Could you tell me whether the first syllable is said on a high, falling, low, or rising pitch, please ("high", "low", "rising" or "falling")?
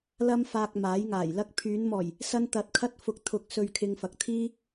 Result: high